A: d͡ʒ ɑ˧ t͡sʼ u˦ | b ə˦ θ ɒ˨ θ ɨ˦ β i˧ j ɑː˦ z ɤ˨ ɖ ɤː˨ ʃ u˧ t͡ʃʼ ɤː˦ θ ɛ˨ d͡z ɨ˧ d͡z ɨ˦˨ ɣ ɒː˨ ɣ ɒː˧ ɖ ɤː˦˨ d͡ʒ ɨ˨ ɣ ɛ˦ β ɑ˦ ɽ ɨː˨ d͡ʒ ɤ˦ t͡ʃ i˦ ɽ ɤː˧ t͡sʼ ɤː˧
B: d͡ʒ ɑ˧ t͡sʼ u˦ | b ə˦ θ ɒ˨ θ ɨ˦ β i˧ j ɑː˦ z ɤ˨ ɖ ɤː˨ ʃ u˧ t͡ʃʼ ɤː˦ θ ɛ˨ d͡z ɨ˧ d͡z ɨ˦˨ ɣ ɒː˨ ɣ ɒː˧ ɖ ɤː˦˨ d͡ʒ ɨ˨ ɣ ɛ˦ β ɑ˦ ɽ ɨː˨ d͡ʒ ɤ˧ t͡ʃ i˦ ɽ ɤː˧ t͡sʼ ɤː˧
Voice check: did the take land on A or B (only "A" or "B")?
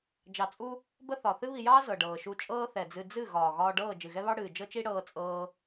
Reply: A